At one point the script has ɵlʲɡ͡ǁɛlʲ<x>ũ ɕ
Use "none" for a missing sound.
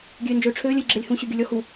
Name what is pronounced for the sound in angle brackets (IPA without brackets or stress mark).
h